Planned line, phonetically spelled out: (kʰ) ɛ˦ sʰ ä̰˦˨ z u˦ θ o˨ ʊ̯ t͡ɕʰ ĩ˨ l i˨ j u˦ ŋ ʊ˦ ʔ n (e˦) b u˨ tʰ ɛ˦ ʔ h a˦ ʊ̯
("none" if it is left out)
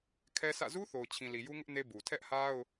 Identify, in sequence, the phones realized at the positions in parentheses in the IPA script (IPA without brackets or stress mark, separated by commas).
kʰ, e˦